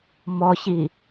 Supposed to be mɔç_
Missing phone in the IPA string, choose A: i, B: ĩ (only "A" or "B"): A